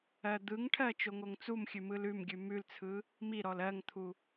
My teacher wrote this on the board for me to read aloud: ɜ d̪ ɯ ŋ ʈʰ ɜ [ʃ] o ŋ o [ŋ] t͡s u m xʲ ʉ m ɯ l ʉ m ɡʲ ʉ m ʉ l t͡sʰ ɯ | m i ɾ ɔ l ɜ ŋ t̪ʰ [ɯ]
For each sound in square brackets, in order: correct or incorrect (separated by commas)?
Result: incorrect, correct, incorrect